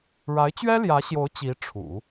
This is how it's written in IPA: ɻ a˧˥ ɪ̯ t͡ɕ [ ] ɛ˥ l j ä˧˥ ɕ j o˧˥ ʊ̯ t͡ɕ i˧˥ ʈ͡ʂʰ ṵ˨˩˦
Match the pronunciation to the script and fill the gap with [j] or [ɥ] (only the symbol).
ɥ